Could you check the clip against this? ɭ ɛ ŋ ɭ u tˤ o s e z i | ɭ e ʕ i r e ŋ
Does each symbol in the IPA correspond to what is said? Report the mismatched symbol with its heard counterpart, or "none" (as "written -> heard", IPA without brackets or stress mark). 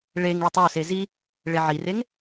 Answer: ɛ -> e